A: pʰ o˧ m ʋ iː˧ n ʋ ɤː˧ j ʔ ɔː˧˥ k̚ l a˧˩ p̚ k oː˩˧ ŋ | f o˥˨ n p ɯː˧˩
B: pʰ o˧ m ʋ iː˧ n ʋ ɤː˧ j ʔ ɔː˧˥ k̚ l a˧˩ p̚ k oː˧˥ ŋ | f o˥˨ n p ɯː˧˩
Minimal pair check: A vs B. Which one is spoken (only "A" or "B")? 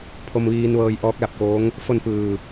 B